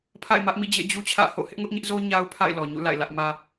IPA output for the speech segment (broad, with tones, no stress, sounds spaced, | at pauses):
pʰ a̰˦˨ ɪ̯ m ä˦ ʔ m ḭ˦˨ d͡ʑ ḛ˦˨ d͡ʑ u˦ t͡ɕʰ ä̰˦˨ h o̰˦˨ h ɪ˦ ʔ ŋ ʊ˦ ʔ ɲ ɪ˦ ʔ z o˦ ɲ a˦ ʊ̯ pʰ a̰˦˨ ɪ̯ l ɔ˨ ɲ ṵ˦˨ l a̰˦˨ ɪ̯ l ä˦ ʔ m ä˦